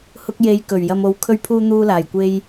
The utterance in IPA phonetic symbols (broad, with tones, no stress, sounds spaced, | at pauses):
h ʊ˧ k̚ j e˨˧ j k ɵ˨˩ ɥ j ɐ˧ m o˧ w kʰ ɵ˧ ɥ pʰ uː˧ n̪ uː˧ l aː˨˩ j kʷ e˧ j